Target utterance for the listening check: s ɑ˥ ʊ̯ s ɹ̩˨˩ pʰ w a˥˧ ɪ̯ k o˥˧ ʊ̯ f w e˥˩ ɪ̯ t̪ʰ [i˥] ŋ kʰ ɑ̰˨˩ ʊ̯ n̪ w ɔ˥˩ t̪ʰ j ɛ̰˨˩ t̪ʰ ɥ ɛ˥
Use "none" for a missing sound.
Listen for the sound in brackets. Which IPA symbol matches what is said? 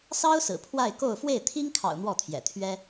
i˥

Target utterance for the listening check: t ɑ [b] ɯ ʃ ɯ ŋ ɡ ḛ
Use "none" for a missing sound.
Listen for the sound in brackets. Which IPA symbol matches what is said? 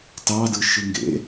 d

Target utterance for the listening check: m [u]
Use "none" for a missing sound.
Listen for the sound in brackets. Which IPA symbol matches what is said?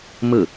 ɯ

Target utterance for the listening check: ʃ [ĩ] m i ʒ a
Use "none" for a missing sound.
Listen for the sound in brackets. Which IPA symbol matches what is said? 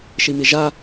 i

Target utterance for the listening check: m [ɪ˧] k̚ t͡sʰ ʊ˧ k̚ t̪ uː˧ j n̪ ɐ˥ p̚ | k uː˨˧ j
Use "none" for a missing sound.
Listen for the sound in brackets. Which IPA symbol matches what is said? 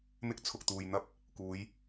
ɪ˥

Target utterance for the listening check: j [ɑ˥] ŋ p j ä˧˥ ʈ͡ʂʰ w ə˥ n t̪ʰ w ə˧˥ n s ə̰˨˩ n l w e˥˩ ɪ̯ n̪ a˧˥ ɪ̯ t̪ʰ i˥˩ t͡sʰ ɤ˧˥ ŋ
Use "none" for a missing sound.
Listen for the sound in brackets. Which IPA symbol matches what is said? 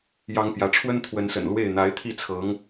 ɑ˥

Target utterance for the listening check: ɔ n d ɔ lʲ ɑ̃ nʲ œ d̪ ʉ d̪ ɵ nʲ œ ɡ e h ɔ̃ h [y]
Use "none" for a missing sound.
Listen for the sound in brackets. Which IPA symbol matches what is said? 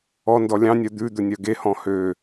ø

